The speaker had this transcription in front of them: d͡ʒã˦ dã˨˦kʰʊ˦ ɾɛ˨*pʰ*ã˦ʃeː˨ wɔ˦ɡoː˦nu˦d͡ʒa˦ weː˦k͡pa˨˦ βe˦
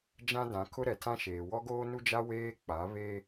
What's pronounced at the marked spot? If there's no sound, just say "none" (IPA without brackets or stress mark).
tʰ